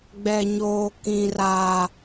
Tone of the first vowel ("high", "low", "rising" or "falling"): low